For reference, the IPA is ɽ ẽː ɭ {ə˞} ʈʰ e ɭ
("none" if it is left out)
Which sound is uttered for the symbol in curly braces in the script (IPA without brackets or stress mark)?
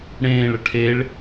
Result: ə